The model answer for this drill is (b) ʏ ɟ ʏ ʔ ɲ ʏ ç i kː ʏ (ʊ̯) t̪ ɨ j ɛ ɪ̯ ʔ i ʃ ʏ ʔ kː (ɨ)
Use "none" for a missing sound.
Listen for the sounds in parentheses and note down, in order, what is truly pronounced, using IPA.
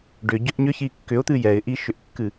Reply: ɖ, ʊ̯, ɨ

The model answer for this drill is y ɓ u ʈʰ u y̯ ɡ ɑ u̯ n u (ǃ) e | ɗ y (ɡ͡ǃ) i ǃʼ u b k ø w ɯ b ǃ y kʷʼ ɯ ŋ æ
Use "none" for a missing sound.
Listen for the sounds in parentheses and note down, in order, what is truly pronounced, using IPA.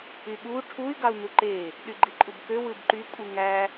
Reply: ǃ, ɡ͡ǃ

